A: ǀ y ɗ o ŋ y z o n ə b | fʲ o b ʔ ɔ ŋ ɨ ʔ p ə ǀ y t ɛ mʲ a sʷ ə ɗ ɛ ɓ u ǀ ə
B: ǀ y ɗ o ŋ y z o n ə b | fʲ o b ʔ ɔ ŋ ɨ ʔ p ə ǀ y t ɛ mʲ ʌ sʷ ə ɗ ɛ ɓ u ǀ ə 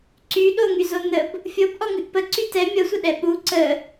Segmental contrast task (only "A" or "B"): B